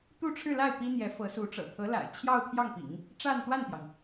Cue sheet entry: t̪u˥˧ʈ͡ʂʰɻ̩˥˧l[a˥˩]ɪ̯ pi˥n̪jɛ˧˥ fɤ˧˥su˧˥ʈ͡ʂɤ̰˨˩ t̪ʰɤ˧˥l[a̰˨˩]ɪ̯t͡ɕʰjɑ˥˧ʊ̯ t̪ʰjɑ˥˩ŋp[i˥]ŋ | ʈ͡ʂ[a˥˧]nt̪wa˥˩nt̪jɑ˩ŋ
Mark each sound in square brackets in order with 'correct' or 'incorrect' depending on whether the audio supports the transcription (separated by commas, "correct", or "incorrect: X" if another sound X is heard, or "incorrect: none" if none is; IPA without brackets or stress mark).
correct, correct, incorrect: ḭ˨˩˦, correct